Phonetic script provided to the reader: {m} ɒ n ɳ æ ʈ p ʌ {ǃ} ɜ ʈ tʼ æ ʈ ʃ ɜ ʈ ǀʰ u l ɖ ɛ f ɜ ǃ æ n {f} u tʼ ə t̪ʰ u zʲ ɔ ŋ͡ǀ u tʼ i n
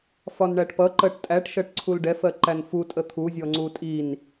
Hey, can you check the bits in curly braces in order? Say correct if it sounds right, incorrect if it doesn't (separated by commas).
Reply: incorrect, correct, correct